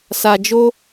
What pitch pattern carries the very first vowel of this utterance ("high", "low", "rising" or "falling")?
low